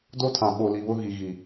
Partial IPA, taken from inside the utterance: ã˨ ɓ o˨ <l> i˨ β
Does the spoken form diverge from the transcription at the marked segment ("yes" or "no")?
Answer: no